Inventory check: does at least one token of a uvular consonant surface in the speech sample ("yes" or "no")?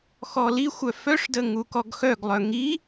no